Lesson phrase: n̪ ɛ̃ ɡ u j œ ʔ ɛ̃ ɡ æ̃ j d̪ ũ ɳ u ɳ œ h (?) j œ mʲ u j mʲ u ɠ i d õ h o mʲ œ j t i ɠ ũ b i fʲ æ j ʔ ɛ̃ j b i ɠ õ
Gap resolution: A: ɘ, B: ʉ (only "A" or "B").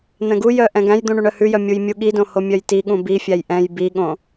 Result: B